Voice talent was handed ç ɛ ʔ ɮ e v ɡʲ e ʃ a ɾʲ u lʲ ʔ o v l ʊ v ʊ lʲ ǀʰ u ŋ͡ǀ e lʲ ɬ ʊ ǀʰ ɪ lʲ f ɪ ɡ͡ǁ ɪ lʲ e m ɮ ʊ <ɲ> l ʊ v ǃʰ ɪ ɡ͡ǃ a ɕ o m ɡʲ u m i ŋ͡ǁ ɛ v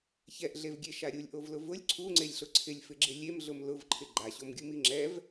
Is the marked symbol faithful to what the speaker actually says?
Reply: no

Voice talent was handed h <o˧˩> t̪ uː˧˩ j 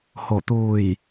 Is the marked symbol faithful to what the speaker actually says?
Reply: yes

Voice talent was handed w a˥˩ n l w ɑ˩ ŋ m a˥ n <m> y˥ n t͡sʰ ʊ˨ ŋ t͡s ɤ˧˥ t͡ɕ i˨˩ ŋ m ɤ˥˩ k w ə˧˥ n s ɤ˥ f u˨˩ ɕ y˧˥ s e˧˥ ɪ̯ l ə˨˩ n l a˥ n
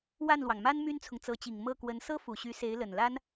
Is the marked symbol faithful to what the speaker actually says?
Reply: yes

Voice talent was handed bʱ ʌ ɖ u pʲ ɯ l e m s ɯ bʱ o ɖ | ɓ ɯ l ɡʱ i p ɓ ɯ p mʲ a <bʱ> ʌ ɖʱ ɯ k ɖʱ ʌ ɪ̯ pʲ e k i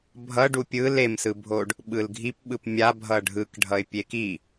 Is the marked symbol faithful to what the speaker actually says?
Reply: yes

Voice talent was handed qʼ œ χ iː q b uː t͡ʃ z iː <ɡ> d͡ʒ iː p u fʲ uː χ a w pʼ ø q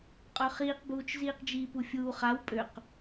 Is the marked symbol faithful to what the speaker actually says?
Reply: no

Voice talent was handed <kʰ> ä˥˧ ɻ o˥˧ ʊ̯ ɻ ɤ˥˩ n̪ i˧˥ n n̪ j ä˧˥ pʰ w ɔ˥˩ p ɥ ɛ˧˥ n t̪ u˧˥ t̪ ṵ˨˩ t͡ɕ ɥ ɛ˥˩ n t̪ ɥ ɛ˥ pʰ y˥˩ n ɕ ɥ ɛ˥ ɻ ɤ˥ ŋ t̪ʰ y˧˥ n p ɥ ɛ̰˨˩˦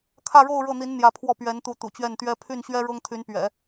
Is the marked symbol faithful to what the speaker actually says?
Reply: yes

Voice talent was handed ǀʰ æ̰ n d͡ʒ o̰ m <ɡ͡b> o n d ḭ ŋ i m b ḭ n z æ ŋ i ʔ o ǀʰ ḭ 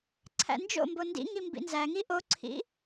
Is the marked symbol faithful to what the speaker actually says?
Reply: no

